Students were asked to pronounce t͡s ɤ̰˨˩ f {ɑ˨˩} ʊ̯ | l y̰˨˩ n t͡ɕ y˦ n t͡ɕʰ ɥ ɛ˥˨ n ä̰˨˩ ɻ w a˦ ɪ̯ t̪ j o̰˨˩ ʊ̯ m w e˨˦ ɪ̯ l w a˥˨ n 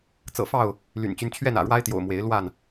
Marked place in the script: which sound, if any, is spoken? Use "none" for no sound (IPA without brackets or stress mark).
ɑ˥˨